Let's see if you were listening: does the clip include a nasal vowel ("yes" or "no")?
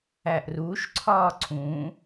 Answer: yes